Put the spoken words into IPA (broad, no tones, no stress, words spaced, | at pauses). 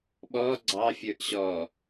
ɓɔ ɡ͡ǀɑfʲə˞ʔ ɕɔ